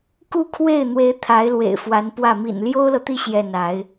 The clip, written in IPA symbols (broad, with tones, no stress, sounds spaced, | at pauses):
k u˥˧ kʰ w e˥˩ ɪ̯ n̪ w e˧˥ ɪ̯ t̪ʰ a˧˥ ɪ̯ l w ḛ˨˩ ɪ̯ f w a˧˥ n p w ä˥˩ m ḭ˨˩ n l j o˥ ʊ̯ l ɤ˨ t̪ i˥˧ ɕ j ɛ˥˩ n a˧˥ ɪ̯